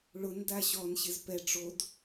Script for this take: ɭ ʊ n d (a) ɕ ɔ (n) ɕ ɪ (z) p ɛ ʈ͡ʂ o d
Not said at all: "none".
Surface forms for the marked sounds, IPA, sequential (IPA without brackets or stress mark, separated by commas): a, n, z